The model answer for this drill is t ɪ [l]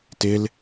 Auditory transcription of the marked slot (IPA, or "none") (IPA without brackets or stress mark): l